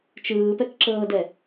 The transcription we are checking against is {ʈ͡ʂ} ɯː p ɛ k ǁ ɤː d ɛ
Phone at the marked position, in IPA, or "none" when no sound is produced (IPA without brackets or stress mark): t͡ʃ